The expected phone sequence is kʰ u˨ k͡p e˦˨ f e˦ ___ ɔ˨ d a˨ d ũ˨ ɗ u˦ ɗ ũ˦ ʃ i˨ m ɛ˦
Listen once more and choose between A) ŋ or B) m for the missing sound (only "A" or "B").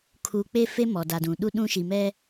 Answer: B